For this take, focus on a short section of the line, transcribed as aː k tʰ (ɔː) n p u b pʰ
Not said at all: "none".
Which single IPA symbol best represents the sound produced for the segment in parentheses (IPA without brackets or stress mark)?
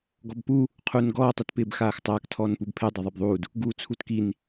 ɔː